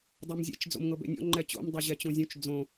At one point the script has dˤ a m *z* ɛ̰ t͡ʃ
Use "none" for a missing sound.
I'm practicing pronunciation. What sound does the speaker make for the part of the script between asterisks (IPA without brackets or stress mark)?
zʲ